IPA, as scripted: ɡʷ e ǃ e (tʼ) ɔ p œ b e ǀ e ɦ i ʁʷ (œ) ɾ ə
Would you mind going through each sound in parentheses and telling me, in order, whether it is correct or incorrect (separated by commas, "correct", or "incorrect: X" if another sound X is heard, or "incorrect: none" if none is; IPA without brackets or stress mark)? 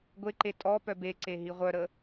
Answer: correct, correct